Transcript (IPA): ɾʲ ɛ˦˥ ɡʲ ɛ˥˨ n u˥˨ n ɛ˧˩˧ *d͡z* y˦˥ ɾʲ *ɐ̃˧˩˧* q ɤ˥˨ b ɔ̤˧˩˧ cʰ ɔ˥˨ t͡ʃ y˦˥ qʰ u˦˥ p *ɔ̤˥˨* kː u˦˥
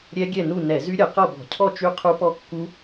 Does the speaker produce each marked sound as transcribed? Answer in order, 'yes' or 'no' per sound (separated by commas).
no, no, no